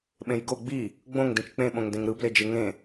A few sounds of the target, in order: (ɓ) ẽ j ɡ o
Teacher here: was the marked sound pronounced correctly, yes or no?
yes